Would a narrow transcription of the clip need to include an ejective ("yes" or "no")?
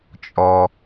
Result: yes